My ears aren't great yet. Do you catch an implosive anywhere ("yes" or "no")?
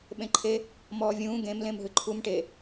yes